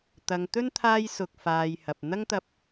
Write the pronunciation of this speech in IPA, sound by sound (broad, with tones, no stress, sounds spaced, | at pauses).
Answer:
t̪ ɐ˨ ŋ t̪ ɵ˥ n t̪ʰ aː˥ j s ʊ˧ k̚ f aː˨ j h ɐ˨ p̚ n̪ ɐ˥ ŋ t̪ ɐ˧ p̚